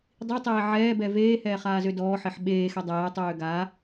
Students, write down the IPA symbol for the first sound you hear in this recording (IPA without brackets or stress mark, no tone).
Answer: dˤ